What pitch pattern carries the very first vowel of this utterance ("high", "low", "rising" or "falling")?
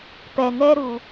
low